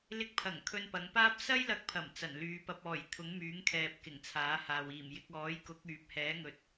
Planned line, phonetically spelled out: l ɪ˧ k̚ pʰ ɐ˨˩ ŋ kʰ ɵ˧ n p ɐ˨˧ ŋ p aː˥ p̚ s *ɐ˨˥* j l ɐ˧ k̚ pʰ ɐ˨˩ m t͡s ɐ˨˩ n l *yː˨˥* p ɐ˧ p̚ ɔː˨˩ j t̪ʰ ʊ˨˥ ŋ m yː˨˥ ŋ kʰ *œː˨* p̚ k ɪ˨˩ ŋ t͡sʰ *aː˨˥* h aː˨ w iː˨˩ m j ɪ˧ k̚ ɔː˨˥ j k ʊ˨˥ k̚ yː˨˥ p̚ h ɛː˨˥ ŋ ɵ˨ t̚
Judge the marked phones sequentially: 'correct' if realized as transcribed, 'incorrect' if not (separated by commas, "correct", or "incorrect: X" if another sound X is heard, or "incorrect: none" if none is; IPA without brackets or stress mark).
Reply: incorrect: ɐ˥, incorrect: yː˨˧, incorrect: ɛː˨, correct